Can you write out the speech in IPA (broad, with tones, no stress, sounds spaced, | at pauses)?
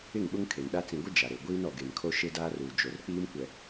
ɪ˦˨ ŋ ɓ ʊ˦ ŋ kʰ e˨ n ɗ a˦ t͡s ĩ˨ ɡʷ ɪ˦ d͡ʒ a˨ ɾ e˨ ɡʷ iː˦ n ɔ˨ ɡ e˨ n kʰ o˦ ʃ e˦ d aː˦ r uː˨ d͡ʒ o˨ r k͡p iː˦ m kʷ ɛ˨